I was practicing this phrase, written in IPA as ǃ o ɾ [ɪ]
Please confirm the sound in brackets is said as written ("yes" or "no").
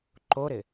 yes